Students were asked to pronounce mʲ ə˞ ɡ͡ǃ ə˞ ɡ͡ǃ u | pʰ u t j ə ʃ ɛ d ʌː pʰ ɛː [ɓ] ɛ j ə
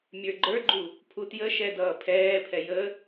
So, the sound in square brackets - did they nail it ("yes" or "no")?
no